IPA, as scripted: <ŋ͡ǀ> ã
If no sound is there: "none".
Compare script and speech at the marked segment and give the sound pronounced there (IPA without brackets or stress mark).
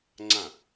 ŋ͡ǀ